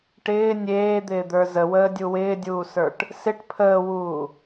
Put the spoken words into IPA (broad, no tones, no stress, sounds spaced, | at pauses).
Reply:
ʈ ɪː nʲ eː d̪ ɪː d̪ ə˞ z ə w əː dʲ u w ɪː dʲ uː s ə˞ ʈ | s ɪ ʈ pʰ əː w uː